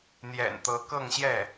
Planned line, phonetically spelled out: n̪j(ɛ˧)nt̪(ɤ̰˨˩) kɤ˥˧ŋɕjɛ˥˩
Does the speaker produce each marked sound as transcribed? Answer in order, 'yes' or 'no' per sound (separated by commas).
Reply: no, no